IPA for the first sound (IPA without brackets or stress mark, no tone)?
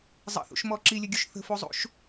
zˤ